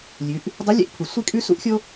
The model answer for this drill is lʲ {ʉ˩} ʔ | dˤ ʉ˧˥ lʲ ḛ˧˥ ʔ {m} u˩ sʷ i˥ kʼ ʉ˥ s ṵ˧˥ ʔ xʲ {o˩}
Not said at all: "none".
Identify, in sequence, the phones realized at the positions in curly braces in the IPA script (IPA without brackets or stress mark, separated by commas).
ʉ˩˧, pʰ, o˥